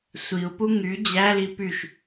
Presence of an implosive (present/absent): absent